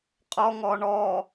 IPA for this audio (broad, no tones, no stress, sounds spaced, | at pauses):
qʼ ɔ ŋ ɔ ɳ ɔ